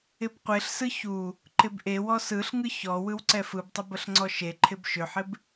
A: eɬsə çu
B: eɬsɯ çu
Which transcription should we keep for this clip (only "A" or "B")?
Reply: B